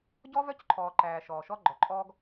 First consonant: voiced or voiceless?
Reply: voiced